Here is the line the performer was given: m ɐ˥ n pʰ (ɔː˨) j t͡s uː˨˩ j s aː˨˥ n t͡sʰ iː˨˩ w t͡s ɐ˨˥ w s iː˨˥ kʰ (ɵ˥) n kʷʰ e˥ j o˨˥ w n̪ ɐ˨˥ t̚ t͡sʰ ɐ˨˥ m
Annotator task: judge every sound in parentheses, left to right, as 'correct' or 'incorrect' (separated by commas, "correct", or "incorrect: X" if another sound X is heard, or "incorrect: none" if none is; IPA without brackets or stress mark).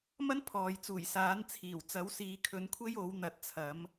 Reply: correct, incorrect: ɵ˨˥